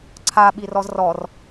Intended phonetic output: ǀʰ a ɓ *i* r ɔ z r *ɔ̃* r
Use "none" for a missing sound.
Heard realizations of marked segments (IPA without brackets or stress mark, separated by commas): i, ɔ